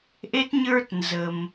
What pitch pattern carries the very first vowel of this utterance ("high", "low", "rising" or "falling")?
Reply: high